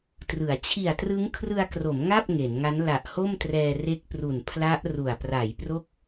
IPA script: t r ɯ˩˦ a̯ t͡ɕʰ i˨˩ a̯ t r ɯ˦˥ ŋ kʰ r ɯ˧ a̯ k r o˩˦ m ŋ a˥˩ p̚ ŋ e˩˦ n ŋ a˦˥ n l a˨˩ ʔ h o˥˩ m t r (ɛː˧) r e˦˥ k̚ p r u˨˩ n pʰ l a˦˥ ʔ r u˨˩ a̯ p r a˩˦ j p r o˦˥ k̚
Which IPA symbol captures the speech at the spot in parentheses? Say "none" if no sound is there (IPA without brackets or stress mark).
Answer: ɛː˧